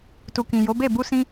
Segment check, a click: absent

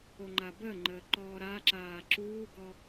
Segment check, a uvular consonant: absent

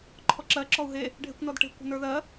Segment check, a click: present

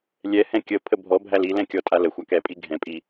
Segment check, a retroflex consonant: absent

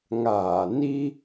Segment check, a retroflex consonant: absent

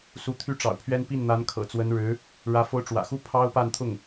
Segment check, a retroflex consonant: present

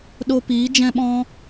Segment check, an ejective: absent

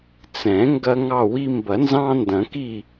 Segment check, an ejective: absent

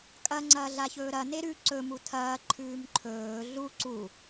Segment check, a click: present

